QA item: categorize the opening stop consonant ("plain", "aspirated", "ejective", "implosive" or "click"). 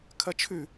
aspirated